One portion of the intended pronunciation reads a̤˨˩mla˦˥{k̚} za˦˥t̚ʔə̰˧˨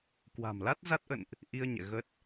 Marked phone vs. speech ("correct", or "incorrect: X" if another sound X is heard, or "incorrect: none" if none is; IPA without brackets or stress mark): incorrect: t̚